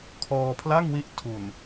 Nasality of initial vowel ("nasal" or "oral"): oral